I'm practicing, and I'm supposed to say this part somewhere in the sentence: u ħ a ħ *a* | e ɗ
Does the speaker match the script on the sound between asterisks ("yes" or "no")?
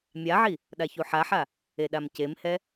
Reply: yes